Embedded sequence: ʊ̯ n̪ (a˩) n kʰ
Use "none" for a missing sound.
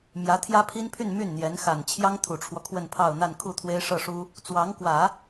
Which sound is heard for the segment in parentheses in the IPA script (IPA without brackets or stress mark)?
a˥˧